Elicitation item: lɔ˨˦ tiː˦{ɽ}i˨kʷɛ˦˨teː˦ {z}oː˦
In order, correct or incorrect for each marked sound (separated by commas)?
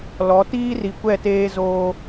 incorrect, correct